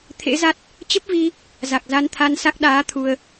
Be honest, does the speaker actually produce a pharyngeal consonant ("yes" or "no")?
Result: no